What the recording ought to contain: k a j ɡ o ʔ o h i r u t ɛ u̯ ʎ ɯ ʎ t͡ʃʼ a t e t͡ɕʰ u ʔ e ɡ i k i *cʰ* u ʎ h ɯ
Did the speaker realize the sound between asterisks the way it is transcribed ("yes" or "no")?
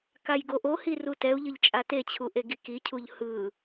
yes